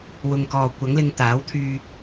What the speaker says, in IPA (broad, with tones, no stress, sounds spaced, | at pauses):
w ʊ˨ ŋ k ɔː˨ kʷ ɐ˨˥ ŋ l ɪ˧ ŋ t̪ aː˨˥ w t̪ʰ yː˧